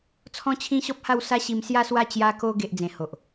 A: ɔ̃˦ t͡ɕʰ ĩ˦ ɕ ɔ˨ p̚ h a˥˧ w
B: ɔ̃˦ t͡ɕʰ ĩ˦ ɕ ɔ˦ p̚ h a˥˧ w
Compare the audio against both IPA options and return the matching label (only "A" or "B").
B